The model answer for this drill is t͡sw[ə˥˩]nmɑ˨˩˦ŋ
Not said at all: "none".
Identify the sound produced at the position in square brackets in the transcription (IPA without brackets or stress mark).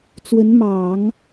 ə˧˥